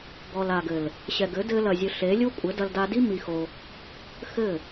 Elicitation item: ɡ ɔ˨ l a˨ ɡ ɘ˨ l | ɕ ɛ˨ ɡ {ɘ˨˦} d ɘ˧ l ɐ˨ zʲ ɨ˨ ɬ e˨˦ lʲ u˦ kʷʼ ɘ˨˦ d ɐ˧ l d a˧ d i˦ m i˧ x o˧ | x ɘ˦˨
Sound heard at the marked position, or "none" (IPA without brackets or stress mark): ɘ˨˦